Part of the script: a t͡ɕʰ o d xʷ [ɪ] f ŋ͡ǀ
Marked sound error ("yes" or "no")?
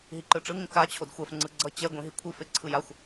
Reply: yes